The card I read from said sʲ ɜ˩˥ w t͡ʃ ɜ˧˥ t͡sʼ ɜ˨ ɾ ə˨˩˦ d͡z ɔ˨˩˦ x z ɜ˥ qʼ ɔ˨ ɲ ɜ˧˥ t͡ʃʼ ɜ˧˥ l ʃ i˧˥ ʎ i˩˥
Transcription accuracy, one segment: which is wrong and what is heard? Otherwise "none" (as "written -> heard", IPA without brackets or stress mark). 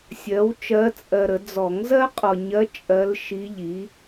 x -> ŋ